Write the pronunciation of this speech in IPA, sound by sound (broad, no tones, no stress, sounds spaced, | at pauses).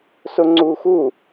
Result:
s ʊ ŋ͡ǀ u x u